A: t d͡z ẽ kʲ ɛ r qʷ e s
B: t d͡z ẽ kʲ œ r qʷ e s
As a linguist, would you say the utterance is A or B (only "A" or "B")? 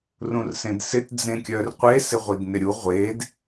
B